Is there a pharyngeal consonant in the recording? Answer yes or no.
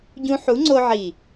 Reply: yes